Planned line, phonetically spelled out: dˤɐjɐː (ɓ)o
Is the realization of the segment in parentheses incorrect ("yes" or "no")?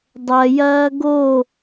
yes